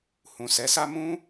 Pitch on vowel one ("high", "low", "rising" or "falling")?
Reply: low